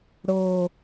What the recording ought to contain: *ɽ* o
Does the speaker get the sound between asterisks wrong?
no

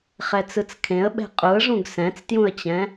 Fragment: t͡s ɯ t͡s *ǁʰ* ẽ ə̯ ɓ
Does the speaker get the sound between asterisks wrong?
yes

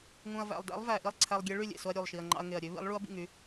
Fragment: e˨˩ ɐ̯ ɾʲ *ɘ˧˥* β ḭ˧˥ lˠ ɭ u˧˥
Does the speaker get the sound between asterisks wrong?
yes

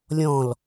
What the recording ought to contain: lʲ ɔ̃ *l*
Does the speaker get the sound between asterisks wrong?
no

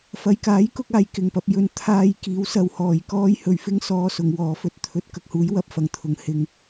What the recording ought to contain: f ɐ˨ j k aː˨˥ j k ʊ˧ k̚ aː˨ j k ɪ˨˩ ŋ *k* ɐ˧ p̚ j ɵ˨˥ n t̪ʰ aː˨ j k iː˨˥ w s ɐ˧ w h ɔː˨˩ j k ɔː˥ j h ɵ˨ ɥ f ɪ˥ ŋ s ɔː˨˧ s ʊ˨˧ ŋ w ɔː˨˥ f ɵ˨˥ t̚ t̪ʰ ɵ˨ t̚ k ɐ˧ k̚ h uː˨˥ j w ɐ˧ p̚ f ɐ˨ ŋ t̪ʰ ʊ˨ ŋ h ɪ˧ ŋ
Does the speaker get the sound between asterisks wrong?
yes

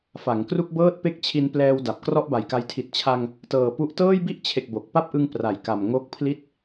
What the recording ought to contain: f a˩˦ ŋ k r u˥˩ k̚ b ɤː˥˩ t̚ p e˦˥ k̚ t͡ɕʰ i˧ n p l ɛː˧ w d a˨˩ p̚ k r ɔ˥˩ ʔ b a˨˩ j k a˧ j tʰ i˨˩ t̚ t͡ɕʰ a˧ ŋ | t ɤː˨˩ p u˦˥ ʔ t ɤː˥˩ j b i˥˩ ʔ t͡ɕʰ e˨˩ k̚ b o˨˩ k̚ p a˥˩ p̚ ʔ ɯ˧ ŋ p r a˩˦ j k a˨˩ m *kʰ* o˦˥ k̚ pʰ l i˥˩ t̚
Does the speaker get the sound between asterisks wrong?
yes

